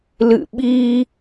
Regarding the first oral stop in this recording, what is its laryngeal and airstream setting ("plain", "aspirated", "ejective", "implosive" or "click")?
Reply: implosive